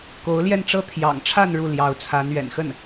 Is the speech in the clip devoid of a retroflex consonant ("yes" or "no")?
no